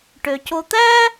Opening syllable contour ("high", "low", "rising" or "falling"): low